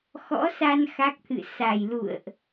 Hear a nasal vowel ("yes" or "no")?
no